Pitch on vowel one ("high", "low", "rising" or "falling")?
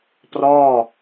falling